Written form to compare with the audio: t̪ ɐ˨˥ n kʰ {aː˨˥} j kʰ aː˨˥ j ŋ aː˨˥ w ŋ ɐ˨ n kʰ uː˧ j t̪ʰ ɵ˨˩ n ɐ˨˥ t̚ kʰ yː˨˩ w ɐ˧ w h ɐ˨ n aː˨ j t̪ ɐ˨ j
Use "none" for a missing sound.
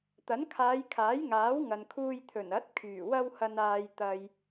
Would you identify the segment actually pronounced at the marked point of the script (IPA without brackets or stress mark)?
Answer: aː˨˧